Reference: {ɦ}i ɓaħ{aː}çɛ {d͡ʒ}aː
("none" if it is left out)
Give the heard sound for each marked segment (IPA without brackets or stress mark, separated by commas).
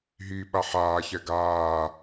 ɦ, aː, ɡ